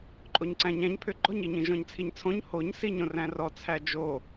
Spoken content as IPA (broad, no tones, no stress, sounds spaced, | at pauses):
ǃʼ o ɲ ǀ æ̃ ɲ æ̃ ɲ pʰ ʏ ɡ͡ǃ ɔ ɲ i ɲ ĩ ʒ ɔ̃ ɲ t͡sʰ i ɲ t͡sʰ õ ɲ h o ɲ s i ɲ õ r æ̃ r ɔ t͡sʰ æ d͡ʒ o